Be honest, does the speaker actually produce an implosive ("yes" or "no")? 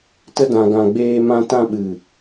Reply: yes